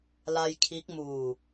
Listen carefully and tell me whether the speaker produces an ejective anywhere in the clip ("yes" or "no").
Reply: no